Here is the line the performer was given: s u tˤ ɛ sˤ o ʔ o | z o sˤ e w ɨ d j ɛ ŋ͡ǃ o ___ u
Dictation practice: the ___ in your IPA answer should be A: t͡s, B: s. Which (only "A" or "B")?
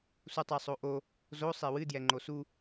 B